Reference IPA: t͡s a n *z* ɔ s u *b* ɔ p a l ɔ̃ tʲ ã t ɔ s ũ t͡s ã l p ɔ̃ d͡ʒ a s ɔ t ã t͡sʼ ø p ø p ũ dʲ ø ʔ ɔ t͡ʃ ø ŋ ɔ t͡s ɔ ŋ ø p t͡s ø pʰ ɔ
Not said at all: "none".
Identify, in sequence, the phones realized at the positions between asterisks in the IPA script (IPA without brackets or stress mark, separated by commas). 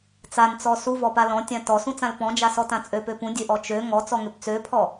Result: t͡s, v